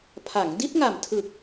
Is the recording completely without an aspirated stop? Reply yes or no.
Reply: no